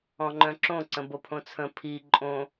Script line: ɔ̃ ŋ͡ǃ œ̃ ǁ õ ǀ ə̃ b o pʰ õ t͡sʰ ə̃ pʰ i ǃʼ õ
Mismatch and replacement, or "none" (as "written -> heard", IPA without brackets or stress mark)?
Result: none